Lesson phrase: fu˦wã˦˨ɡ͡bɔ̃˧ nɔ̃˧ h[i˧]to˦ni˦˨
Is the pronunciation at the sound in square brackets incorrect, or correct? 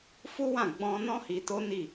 correct